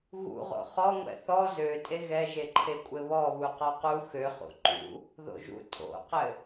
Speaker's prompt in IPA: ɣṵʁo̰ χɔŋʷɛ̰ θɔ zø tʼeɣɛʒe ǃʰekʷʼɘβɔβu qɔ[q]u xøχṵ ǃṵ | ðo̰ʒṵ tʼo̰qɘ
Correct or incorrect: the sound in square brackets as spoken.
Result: correct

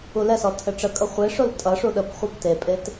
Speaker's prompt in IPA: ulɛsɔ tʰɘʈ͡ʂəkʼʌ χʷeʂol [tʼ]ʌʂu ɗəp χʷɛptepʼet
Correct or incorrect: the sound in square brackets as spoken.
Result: correct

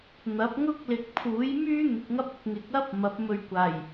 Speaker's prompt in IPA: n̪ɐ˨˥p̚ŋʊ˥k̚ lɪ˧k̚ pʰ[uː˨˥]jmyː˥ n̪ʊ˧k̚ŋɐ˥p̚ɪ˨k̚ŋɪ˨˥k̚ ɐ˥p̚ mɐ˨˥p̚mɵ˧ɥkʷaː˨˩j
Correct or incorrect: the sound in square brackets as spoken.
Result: correct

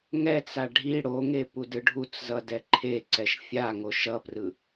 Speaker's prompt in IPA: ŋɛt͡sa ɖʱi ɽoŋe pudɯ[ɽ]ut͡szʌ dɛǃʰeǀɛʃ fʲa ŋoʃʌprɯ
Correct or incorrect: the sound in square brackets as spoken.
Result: incorrect: ɖʱ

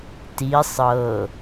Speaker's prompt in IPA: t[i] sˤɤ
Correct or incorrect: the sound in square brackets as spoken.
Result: correct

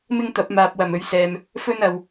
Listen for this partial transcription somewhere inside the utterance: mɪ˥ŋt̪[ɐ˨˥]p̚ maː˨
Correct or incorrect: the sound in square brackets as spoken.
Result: correct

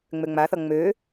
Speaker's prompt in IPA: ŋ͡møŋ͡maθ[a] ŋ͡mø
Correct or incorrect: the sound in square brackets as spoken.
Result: incorrect: ʌ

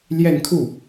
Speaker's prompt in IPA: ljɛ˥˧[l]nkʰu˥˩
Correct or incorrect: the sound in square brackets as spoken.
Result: incorrect: none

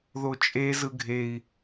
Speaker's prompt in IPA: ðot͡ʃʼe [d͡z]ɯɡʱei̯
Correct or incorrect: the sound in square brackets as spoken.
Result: incorrect: z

